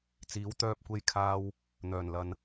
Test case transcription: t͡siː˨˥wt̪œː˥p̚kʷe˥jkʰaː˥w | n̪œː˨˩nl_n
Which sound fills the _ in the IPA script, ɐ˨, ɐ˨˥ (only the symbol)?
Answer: ɐ˨